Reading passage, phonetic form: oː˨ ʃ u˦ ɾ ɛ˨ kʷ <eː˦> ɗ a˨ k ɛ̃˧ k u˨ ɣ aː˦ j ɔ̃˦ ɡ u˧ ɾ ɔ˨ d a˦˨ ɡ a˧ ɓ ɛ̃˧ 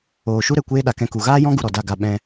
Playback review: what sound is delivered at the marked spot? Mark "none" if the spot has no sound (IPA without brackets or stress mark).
eː˦